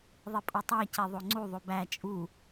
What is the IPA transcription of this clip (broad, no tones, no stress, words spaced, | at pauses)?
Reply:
ðˤipʼotˤæ ceðˤoŋ͡ǀu ðˤobæ t͡ʃʼu